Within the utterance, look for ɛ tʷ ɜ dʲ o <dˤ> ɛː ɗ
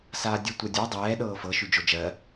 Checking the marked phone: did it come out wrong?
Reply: no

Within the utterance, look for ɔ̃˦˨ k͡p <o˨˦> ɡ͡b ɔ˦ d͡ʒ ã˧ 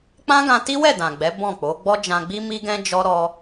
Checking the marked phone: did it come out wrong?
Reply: no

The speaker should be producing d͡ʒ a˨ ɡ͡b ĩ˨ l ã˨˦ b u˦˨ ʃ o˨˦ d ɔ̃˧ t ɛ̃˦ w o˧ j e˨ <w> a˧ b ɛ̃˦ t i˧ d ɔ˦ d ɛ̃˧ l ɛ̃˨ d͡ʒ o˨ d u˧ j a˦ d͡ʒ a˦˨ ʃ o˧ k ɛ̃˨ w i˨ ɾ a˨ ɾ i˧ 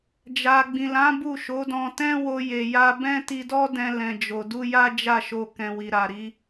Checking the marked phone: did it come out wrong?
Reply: yes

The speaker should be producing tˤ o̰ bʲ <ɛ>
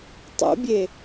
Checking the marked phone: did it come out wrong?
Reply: yes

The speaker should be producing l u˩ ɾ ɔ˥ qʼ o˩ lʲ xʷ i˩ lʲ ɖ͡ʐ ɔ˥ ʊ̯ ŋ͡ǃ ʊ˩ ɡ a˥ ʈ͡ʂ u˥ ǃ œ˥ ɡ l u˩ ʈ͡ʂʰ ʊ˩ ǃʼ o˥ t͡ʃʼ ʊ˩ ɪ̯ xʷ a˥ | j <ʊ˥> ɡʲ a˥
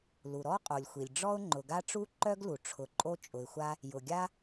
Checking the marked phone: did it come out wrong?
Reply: yes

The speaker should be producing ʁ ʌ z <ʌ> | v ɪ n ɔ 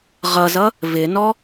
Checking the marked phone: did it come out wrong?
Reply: no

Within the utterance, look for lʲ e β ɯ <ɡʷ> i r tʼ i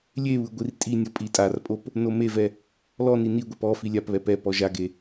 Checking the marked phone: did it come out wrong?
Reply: no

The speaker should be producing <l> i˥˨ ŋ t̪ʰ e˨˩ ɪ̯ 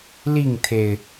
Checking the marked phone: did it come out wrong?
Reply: no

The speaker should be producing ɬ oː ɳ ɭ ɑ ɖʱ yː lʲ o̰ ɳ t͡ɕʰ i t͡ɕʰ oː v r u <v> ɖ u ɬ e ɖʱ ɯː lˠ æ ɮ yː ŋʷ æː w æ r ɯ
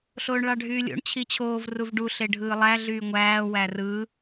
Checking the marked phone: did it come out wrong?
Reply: no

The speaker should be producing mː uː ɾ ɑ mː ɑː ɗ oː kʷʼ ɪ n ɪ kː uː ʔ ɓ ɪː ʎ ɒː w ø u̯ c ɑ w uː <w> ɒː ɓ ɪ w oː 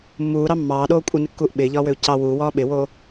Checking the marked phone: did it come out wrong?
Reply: no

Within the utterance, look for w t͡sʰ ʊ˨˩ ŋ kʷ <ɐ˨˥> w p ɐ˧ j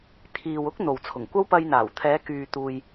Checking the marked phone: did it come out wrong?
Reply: yes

